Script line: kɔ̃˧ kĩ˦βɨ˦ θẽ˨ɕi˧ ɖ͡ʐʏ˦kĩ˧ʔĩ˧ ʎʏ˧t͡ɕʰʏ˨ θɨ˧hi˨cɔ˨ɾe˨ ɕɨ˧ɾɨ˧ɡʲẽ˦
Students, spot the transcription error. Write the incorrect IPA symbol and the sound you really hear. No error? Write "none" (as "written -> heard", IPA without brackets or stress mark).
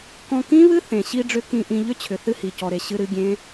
none